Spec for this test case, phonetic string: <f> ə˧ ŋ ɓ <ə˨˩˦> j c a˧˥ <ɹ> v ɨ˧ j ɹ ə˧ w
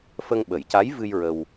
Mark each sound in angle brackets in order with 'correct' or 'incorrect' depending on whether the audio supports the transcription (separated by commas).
correct, correct, incorrect